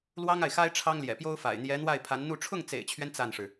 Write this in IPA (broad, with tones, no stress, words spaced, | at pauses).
lwɑ˥ŋa˨ɪ̯xa˥ɪ̯ ʈ͡ʂʰɑ˥ŋljɛ̰˨˩pjo˥ʊ̯fa̰˨˩ɪ̯ n̪jɛ˧˥n̪wa˥˩ɪ̯ pʰa˧˥nn̪u˥˧ ʈ͡ʂʰʊ˥˩ŋt͡sḛ˨˩ɪ̯t͡ɕʰɥɛ˦n t͡sa˥˩nʂɻ̩˩